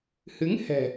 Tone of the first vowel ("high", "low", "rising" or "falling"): rising